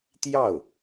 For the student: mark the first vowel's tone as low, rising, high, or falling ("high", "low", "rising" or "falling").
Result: falling